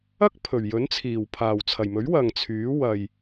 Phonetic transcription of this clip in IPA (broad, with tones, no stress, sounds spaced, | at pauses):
ɐ˥ k̚ pʰ ɵ˨˩ ɥ j ɵ˨˥ n t͡sʰ iː˨˩ w pʰ aː˨˩ w t͡sʰ ɐ˨˩ j m ɵ˨˥ ɥ w ɐ˨ ŋ t͡sʰ yː˨˥ w ɐ˨ j